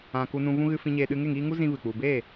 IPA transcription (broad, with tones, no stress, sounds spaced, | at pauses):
ã˧ k u˧ n ũ˧ v ũ˧ ɣ ɨ˧ f ĩ˧ ɲ eː˧ ɗ ɨ˧ ŋ e˦˨ ŋ iː˧ ŋ u˦ z ĩ˦ v ɨ˨ k͡p u˨ b e˦˨